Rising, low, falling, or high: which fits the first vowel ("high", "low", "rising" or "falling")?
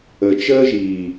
low